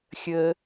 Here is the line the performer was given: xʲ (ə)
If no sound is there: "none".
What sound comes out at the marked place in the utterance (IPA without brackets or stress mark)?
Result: ə